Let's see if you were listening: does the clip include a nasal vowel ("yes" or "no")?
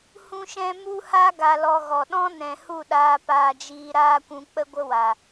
yes